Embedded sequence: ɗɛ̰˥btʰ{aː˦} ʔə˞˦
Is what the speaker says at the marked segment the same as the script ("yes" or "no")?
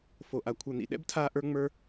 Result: yes